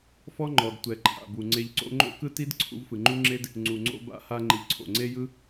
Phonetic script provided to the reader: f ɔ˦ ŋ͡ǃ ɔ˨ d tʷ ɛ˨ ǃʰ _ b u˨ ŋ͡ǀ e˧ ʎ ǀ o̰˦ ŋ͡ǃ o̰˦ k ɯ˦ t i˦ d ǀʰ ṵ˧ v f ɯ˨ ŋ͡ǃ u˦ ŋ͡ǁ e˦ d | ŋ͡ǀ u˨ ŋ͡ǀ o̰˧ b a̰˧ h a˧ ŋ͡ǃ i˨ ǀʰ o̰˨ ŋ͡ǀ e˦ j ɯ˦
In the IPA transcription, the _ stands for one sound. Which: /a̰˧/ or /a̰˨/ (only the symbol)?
a̰˨